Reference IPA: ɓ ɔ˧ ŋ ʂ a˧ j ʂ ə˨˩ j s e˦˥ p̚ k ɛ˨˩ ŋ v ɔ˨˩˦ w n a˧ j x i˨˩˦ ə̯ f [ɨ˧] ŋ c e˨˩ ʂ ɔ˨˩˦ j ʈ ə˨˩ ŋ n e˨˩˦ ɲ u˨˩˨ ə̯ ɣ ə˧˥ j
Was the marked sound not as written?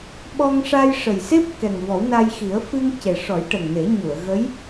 no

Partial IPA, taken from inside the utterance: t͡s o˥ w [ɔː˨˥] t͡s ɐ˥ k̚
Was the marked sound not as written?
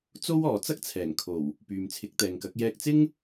yes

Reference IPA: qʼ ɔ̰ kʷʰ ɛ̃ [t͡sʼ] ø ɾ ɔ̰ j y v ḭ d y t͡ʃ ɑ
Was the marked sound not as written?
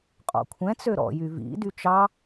yes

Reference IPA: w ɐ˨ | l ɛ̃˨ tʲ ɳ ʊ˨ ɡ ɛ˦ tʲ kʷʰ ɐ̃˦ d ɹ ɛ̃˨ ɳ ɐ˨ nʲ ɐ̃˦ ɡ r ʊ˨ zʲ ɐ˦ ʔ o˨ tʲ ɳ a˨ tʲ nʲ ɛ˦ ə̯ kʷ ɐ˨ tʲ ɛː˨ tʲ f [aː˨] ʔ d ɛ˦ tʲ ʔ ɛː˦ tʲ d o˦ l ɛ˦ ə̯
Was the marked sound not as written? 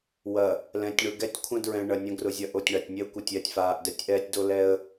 no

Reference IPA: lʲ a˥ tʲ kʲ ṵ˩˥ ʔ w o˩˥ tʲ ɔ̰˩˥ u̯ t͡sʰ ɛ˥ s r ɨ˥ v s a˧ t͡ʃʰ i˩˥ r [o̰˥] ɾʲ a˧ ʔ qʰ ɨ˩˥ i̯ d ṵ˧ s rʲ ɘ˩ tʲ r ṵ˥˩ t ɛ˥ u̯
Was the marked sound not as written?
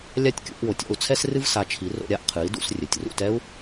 yes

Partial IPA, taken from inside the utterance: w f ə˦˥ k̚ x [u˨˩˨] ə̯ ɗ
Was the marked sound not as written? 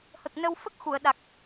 no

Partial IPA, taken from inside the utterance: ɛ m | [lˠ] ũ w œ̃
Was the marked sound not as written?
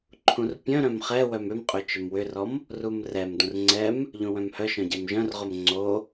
yes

